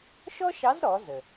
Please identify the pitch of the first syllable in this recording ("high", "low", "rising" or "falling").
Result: high